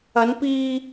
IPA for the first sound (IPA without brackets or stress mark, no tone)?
ɐ